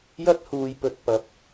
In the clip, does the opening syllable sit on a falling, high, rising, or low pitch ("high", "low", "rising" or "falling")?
high